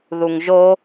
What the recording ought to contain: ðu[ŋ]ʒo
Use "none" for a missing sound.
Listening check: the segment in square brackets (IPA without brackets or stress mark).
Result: ŋ